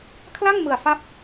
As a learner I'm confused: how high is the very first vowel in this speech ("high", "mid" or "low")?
low